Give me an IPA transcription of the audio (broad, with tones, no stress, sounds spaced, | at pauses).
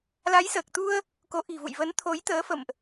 l a˨˦ j s əː˨˩ k̚ t̪ u˧ ə̯ | k o˨˦ ʔ i̤˨˩ v ṵ˧˨ j v ə˨˦ n t̪ʰ o˨˦ j t̪ əː˨˦ f ə̰˧˨ m ʔ